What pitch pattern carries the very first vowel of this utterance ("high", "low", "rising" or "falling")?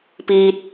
low